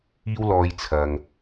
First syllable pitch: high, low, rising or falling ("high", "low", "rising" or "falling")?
high